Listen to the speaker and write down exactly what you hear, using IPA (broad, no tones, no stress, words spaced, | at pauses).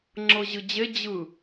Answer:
ŋ͡ǁɤʑɯd͡ʑe d͡ʑɯ